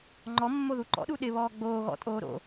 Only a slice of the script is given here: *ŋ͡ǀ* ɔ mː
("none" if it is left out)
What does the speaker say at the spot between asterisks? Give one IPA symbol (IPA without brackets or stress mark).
ŋ͡ǃ